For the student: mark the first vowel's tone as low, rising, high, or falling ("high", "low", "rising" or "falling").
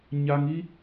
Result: high